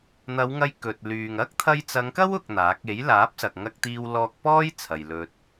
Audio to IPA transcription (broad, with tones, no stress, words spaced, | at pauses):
n̪ɐ˨˧wŋɐ˧j kɵ˨t̚lyː˨ŋ ɐ˥k̚t̪ʰɐ˧jt͡sɐ˨˧ŋkɐ˥w ʊ˨˥k̚n̪aː˨˥k̚ e˨˥j laː˨˥p̚sɐ˨k̚ŋɐ˧k̚t̪iː˧w lɔː˧k̚pɔː˥j t͡sʰɐ˨jlɵ˧t̚